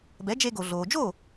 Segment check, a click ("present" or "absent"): absent